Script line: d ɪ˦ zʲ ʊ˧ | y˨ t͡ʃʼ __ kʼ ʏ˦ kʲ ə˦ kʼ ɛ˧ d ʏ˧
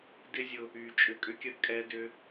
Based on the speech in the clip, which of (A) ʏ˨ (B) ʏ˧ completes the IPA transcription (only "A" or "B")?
B